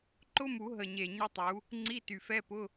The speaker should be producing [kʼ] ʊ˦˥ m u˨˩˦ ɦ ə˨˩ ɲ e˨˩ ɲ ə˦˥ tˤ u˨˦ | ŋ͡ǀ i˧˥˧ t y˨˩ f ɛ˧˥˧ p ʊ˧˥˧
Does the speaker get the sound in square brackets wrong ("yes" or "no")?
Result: yes